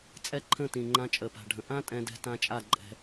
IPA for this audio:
t͡sʼɛ˦ǃʰə̃˦˨tĩ˨ ŋ͡ǃã˧t͡ʃʼə˨pa̤˨ɖʱə̃˨ ʔã˦ tʼɛ̃˦dɛ̤˦tã˦ t͡ʃʼa˦˨ǃʼɛ̤˧

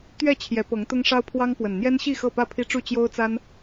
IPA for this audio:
t̪ɥɛ˥˨ t͡ɕʰjɛ˨˦pɤ˨˦ŋ t̪ʊ˦ŋʂɑ˦ʊ̯pʰwɑ˦ŋpwə˨˩n n̪jɛ˦nɕi˥˨ xɤ˥˨pä˥˨pʰi˦ʈ͡ʂu˥˨ t͡ɕjo˦ʊ̯t͡sa˦n

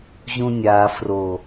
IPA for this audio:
ʑũnʲa fro

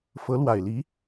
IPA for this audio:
fɤ˧˥lwa˨˩ɪ̯li˧˥

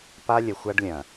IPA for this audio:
pa˦lʲə˨ xʷa˦ɖlʲɐ̃˨

